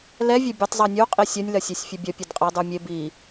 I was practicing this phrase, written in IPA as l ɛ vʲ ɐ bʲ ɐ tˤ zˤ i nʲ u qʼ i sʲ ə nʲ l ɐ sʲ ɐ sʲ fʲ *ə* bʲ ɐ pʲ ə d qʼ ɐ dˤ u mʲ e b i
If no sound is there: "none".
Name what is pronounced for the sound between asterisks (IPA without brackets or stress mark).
ɐ